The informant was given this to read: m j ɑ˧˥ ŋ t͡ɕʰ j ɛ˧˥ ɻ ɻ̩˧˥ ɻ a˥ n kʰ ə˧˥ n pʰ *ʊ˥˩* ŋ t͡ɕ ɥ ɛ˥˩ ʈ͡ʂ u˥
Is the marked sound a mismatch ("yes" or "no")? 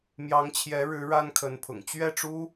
yes